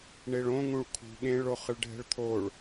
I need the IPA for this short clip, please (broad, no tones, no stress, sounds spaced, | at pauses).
ɳ e ɭ õ ŋ ũ ɭ kʰ ṳ ɠ ẽ ɭ o χ ɯ ɭ ɖʱ ɛ̤ ɭ t̪ʰ o ɭ